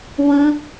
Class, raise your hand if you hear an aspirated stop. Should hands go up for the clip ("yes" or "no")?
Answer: no